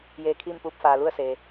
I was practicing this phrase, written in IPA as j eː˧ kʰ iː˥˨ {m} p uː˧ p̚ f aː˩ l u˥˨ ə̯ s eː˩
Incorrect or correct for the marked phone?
correct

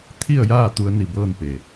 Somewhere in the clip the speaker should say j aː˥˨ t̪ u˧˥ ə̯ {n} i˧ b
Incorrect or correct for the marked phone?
correct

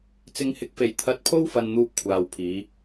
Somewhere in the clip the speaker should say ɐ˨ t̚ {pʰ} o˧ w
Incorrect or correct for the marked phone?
correct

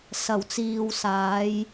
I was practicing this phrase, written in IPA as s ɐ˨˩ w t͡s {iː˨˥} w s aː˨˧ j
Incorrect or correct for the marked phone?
incorrect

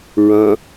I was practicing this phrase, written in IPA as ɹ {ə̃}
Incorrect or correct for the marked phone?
incorrect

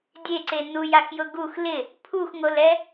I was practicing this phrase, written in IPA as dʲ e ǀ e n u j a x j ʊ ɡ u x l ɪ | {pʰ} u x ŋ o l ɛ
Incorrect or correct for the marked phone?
correct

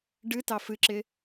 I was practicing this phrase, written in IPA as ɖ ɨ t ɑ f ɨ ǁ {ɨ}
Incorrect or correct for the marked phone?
incorrect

